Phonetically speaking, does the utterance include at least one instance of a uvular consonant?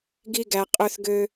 yes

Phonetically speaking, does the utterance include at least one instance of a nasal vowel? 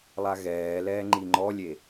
no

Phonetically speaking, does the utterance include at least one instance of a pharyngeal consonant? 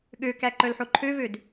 yes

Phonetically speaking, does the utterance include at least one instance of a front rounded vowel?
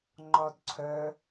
yes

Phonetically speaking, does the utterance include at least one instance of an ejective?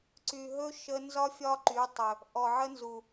no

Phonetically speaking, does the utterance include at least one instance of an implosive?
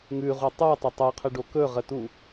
no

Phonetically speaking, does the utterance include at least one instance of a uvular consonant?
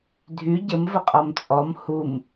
yes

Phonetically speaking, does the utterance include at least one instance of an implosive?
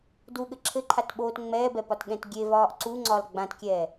yes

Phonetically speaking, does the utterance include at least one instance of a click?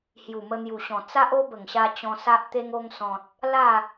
no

